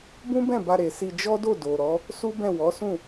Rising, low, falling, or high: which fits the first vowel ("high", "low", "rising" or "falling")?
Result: high